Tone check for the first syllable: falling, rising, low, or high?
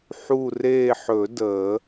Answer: falling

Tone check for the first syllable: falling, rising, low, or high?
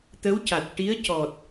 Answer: rising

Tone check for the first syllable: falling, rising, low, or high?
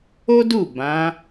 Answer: high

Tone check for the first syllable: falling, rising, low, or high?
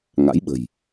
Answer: rising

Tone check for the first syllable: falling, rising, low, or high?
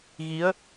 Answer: rising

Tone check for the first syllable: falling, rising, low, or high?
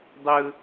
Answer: low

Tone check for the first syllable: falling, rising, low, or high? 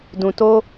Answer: low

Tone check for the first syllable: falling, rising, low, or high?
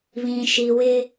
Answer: low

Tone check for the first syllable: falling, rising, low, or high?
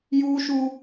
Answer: high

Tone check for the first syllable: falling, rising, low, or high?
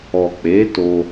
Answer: low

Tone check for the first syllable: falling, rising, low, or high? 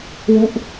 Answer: falling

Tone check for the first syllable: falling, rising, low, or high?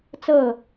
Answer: falling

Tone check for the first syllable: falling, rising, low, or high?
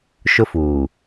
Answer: high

